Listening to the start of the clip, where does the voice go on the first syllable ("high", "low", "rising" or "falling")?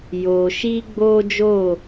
low